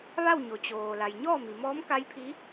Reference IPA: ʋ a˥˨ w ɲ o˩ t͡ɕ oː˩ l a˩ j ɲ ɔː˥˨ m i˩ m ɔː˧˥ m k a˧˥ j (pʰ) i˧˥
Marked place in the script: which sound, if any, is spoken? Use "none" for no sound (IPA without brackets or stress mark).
pʰ